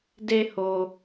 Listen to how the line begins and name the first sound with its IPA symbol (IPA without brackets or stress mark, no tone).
d